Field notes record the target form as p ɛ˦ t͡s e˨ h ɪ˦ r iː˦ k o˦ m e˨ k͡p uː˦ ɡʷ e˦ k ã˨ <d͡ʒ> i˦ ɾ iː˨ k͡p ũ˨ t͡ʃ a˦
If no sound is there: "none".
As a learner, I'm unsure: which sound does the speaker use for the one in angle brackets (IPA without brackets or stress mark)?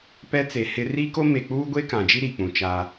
d͡ʒ